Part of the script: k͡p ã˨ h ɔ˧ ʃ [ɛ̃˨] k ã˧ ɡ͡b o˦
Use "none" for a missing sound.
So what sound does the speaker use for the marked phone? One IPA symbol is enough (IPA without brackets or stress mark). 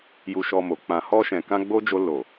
ɛ̃˨